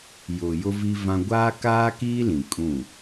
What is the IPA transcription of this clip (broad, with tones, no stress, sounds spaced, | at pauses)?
j ʊ˨ j ʊ˦ v i˦ v ã˦ ɡʷ aː˦ k aː˦ k iː˦ l ĩ˨ kʼ ũ˦˨